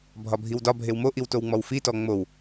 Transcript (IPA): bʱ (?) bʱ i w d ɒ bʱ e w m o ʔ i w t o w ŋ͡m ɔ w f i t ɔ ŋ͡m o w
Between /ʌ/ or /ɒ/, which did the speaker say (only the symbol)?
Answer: ɒ